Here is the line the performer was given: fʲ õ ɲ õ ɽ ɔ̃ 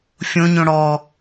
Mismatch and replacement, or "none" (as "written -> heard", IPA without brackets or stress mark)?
ɔ̃ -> ɔ